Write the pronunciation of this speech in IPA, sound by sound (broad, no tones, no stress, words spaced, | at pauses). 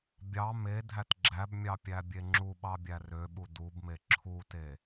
bʲɑ medʱæt ɡ͡ǁæbmʲɑ pʲæbʲeŋ͡ǁuɓɑ bʲærøɓu dubme ǁʰute